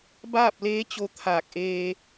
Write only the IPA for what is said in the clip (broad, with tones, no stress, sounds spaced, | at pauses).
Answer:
b aː˥˨ p̚ l eː˧˥ t͡ɕ o˧ t̪ʰ aː˧˩ k̚ ʔ eː˧